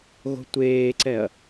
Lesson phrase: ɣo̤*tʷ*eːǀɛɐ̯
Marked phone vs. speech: correct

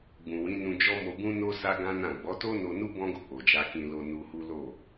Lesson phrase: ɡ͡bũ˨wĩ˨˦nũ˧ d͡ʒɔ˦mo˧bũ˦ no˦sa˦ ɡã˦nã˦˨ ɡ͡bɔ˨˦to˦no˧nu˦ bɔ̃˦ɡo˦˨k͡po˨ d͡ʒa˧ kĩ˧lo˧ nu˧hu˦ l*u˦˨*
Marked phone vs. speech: incorrect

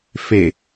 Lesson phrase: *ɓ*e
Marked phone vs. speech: incorrect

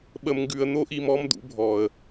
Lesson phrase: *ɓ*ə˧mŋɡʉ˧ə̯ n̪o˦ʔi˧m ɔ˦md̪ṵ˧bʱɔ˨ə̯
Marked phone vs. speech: correct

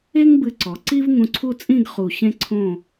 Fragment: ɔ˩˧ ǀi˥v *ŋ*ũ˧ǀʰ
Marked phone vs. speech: correct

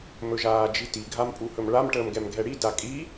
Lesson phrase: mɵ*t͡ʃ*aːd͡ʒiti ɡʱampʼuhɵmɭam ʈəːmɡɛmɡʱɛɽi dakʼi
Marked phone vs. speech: incorrect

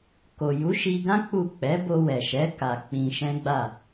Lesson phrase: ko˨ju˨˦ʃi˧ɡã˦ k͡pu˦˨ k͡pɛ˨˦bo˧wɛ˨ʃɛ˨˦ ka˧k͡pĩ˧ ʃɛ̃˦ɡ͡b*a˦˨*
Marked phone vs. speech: correct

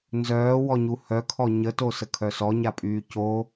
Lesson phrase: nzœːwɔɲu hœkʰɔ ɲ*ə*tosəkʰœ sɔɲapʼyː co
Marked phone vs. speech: correct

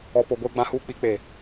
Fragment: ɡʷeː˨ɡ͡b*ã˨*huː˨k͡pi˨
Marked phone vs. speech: correct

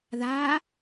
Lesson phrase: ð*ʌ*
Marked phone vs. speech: incorrect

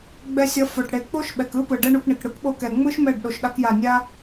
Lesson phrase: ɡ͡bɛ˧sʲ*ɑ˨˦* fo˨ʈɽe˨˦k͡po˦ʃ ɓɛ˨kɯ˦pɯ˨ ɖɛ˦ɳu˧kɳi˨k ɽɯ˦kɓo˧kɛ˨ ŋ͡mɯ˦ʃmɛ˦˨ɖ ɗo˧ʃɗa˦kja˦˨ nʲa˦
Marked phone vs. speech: incorrect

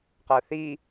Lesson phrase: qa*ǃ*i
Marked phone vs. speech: incorrect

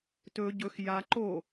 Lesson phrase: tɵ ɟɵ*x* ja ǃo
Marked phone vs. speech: correct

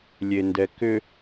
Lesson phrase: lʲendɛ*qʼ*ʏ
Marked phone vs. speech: incorrect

